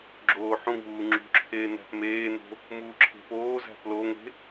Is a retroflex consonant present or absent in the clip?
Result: absent